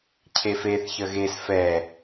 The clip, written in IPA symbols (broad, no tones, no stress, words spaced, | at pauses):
cʰefeθ çəɣes fɛ